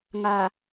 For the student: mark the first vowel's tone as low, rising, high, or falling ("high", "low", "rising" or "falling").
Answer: low